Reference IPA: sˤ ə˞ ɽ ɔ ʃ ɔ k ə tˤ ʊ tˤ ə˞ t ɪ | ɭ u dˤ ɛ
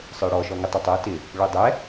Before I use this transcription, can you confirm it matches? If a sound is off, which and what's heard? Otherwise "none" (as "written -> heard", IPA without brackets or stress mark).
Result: k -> ŋ